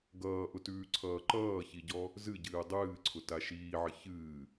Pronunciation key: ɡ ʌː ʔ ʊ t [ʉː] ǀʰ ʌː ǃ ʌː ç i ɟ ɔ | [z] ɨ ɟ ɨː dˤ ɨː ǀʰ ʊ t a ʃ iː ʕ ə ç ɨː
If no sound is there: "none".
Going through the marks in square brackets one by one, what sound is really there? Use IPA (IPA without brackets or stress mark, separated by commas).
ʉː, z